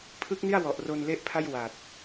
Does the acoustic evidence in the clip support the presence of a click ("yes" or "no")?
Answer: no